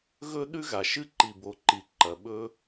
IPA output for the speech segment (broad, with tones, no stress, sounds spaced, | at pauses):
ɣ ɵ˦ ɗ ʉ˦ ɣ a˨ ʃ ɨ˦ ǃ i˨ b o˨ ǃ i˨ ǃ ɐ˨ ɓ ɵ˧